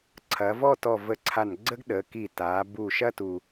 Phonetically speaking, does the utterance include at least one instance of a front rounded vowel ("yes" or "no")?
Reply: no